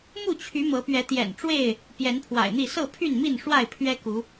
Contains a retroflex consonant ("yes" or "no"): yes